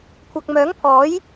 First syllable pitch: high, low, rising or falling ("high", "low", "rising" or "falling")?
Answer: low